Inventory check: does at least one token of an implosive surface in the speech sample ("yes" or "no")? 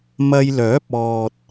no